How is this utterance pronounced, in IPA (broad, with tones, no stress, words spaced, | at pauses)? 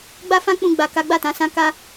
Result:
ɡ͡ba˦fã˦ k͡pũ˧ɡ͡ba˨ka˨˦ ɡ͡ba˦˨tã˨˦sã˦ ka˦